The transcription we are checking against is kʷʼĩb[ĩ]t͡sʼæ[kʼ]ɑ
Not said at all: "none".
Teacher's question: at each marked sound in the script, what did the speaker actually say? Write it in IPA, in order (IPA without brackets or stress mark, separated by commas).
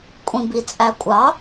i, kʷʼ